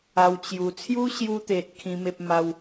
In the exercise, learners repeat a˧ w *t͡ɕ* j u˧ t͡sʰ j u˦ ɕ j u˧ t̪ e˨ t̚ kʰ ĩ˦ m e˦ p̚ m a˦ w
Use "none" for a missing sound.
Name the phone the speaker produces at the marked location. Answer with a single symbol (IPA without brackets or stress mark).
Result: t͡ɕ